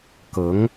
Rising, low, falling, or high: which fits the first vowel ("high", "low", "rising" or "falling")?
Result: rising